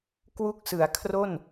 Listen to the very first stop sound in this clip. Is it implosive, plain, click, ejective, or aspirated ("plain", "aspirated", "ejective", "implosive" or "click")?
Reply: plain